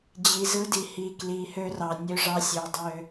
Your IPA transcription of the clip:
d͡ʑ i˨ z ɯ˧ d i˨ h i˨ k l i˨ h ø˧ r ɑ˨ nʲ ø˧ ʐ ɑ˧ sʲ ø˧ dˤ ø˦

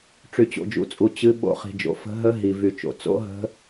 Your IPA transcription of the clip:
ʈ͡ʂ y˨ t͡ɕ o̰˨ d͡ʒ ṵ˨ t͡sʼ u˨ t͡ɕ ɨ˦˥ ɓ o̰˦˥ χ i̤˨ d͡ʒ o̰˨ f ə̤˦˥ ɦ ə˦˥ ɦ i˨ v y˨ t͡ʃ o̰˨ t͡s o̰˦˥ ɦ ə̤˦˥

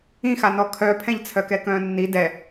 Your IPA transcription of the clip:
ĩ x a n ɔ kʰ œ pʰ ɛ̃ ʎ t͡sʰ œ k ɛ k œ̃ː nː i d ɛ

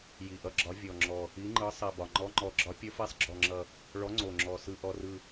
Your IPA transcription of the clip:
j i˨˩ ʔ ʌ˨˦ ɡ͡ǁ ɒ˨˦ vʲ ɔ˨˩ ŋ͡ǁ ɔ˨˩ | i˨˦ ŋ͡ǃ ɯ˨˦ sˤ i˨˩ b ɒ˨˩ ŋ͡ǃ ɔ˨˦ ŋ͡ǃ ɔ˨˩ ɡ͡ǁ ɒ˨˦ pʲ ʌ˨˦ f i˨˦ sˤ ɡ͡ǁ ɔ˨˩ ŋ͡ǁ ʌ˨˩ | ɭ ɔ˨˦ ŋ͡ǀ o˨˩ ŋ͡ǁ ɔ˨˩ s ɯ˨˩ ʔ ɔ˨˩ r ɯ˨˩

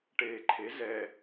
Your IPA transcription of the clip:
ʈ eː ǃʰ e z ɛ

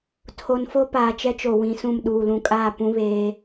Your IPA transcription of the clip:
tʰ o˨ n f o˦ p aː˨ t͡ʃ ɛ˦ t͡ʃ o˨ w ĩ˨˦ s ũ˦˨ m ɗ uː˨ l ũ˨ kʼ aː˦˨ p ũ˦ β eː˦

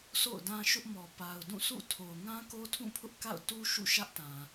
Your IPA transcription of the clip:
s o̰˦˨ ʊ̯ d ã˦ ʃ ʊ˦ ʔ m ɔ˨ p a˨ ʊ̯ d ũ˦˨ s ṵ˦˨ tʰ o˨ ʊ̯ ŋ ã˦ k o˦ tʰ ũ˦˨ pʰ ʊ˦ ʔ k a̰˦˨ ʊ̯ t u˦ ʃ ṵ˦˨ ʃ ä˦ ʔ t ã˨

